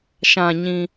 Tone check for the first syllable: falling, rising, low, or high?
low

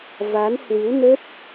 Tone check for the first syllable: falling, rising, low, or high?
rising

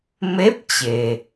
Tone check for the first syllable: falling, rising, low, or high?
rising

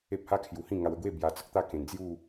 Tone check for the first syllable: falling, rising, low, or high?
high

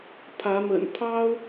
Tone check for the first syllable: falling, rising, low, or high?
rising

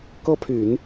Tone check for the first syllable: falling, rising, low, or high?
high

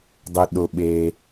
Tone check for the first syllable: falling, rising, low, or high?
low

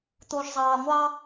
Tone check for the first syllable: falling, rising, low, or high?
low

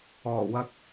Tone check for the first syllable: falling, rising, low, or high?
low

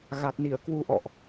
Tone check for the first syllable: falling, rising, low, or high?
low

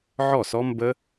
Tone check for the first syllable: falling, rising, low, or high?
falling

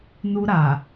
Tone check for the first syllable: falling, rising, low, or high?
high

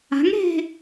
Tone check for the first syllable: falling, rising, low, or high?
rising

